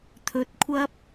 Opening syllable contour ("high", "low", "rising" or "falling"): rising